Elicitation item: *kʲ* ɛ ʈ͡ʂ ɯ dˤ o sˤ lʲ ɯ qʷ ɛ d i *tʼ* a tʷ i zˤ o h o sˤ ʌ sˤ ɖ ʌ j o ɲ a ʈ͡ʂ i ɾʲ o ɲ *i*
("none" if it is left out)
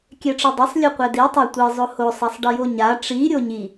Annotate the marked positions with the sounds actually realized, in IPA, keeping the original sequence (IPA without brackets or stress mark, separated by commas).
kʲ, tˤ, i